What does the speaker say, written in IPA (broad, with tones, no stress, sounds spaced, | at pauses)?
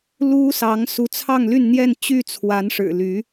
l u˥ s ɑ˧˥ ŋ s u˧˥ t͡sʰ ɑ˥˧ ŋ l y˥˧ n n̪ j ɛ˥˧ n t͡ɕ y˥˩ t͡sʰ w a˧˥ n ʂ ɻ̩˨˩ l y˧˥